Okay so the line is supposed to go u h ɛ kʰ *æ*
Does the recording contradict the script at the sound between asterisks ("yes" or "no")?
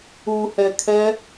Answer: yes